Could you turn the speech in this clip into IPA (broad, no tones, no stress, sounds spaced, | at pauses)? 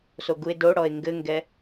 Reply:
s o ɡ u e̯ d o ɽ ɔ e̯ ŋ ɡ ɘ ŋ ɡ ɛ